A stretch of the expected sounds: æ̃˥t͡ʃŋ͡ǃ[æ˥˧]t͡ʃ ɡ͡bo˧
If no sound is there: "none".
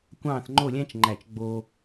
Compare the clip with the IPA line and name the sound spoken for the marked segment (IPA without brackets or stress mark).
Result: æ˧˩